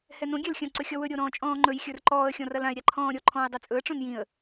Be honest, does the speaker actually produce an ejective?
yes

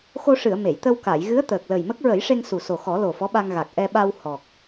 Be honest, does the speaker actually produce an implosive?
yes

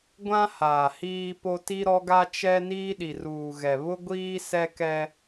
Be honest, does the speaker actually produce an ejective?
no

